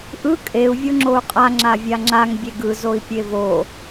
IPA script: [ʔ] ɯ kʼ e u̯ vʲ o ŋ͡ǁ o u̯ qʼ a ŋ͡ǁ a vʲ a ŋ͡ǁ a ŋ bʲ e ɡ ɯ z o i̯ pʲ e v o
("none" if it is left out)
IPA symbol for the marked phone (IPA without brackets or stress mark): ʔ